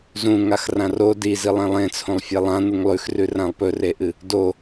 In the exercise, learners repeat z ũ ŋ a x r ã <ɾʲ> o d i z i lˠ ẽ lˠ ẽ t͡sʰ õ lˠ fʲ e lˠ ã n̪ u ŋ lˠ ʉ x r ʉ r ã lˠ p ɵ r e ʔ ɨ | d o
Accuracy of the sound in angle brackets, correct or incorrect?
incorrect